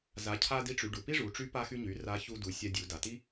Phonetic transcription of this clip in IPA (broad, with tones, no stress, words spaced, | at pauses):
za˩˧cʰa˧ di˧˥ʈ͡ʂy˩˧ ɖu˩pi˥ʐu˩˧ ʈ͡ʂy˧˥pa˧xy˧ɲy˩˧ ra˧˥ çu˧du˩˧ sʲa˧dʲu˩˧ da˩ti˥